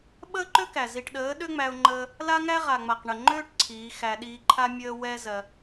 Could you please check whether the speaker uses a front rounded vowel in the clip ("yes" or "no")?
yes